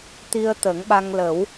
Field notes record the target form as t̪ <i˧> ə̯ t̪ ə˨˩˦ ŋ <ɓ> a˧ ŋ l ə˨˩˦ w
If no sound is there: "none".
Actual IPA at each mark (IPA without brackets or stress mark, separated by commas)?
i˧, ɓ